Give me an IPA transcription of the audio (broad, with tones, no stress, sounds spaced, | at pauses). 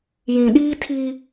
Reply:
j ĩ˨ ɗ iː˦ tʰ i˦